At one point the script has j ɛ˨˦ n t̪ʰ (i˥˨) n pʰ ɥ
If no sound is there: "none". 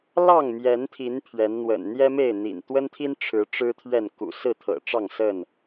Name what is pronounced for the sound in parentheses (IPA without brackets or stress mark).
i˨˦